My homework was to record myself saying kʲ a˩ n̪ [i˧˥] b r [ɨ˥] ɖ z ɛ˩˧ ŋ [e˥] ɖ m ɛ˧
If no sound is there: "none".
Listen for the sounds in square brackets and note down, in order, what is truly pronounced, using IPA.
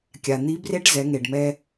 i˧˥, e˥, e˩

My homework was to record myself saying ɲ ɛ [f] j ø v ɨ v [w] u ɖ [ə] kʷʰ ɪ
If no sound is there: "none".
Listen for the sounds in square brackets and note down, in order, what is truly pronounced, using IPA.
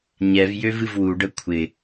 v, w, ə

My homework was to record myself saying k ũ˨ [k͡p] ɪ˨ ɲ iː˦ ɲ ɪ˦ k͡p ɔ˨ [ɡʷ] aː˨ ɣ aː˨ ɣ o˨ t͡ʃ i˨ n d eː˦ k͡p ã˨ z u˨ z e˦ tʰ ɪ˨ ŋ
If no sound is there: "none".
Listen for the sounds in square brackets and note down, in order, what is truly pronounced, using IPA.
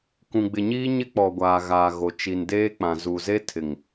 ɡ͡b, ɡʷ

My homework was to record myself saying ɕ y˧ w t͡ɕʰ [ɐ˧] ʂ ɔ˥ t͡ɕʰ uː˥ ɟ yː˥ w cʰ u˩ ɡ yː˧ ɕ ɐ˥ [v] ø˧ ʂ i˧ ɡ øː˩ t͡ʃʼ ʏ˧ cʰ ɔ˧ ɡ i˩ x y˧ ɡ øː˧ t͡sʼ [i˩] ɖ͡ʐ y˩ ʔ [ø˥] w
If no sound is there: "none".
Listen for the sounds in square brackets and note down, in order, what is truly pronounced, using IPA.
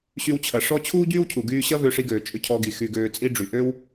ɐ˩, v, i˥, ø˥

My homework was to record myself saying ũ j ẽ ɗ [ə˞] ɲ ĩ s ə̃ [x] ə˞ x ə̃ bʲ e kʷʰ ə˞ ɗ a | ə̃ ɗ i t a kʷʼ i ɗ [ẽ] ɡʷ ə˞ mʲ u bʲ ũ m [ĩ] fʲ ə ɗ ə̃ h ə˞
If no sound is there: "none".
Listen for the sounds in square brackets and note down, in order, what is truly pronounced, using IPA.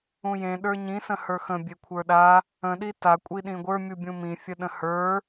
ə˞, h, ĩ, ĩ

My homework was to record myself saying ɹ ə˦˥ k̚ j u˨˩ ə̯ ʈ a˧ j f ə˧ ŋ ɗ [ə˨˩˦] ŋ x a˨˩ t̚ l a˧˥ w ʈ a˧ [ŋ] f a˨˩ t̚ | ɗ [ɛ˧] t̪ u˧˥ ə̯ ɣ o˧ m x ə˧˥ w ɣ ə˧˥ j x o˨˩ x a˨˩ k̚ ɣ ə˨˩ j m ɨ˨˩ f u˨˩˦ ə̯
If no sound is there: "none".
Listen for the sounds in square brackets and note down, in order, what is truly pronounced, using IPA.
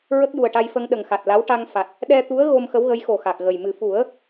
ə˨˩, ŋ, ɛ˧

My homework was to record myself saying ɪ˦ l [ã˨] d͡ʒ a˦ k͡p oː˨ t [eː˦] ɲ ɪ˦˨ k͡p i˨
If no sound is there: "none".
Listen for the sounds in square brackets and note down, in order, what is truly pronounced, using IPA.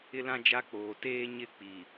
ã˦, eː˦

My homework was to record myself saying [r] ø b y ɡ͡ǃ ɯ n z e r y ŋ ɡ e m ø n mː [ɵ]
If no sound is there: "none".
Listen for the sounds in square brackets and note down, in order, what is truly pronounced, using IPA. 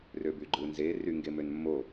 r, o

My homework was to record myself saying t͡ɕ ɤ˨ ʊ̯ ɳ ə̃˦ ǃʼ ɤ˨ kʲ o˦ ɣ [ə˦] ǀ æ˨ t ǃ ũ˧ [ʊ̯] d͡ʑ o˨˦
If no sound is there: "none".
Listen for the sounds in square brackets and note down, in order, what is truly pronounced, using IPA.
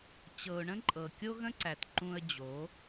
ə̃˦, ə̯

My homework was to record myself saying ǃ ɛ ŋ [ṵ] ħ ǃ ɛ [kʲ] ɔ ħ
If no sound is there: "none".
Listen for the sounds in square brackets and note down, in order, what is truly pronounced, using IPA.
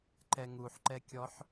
u, kʲ

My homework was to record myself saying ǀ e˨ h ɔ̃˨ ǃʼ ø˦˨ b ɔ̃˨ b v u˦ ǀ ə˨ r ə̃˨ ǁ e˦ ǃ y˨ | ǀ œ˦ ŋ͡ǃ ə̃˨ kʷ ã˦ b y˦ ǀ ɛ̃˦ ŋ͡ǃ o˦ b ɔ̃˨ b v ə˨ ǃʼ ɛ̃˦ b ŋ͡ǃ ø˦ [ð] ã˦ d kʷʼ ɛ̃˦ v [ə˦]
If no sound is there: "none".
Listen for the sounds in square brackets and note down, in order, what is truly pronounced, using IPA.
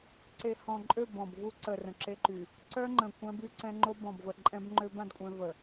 b, ə˨

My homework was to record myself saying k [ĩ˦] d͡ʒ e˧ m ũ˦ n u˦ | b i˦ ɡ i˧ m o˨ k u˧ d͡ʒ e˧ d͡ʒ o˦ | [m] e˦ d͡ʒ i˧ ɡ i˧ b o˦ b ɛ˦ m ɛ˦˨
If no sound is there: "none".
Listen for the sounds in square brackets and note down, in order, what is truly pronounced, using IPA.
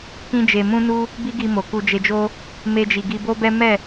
ĩ˦, m

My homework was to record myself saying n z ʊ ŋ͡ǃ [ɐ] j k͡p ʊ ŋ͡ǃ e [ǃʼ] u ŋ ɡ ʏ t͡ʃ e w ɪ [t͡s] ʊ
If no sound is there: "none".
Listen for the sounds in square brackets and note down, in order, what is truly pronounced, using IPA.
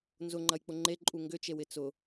ɐ, ǃʼ, t͡s

